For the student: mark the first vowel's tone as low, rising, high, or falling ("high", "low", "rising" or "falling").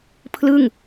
falling